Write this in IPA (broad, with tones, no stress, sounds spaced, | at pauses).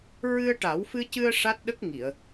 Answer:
ɹ ɨ˧ ə̯ ʈ a˨˩˦ w f ɨ˧ c ɨ˧ ə̯ ʂ a˦˥ t̚ ɗ ə˦˥ k̚ ŋ i˨˩˨ ə̯